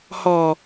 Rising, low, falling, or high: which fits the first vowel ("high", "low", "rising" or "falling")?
low